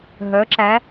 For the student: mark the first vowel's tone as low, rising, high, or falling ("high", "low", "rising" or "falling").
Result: rising